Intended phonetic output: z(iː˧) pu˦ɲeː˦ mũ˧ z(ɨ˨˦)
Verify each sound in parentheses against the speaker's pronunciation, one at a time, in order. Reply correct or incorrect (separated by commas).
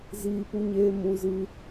correct, incorrect